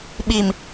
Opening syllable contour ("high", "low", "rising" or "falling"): low